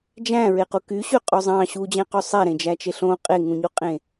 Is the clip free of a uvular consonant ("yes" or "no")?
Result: no